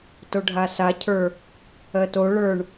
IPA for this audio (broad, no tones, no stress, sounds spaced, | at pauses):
t o ɖʱ a s a cʰ ə˞ | ɜ t o ɭ ə˞ ɳ